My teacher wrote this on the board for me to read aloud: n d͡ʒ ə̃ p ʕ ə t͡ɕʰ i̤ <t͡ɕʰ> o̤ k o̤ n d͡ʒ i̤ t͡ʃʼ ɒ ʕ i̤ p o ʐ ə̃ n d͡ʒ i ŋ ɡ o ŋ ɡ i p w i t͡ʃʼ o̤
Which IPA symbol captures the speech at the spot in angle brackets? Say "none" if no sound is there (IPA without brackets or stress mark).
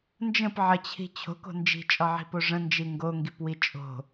t͡ɕʰ